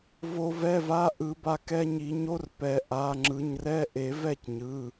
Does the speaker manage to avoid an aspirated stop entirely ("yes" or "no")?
yes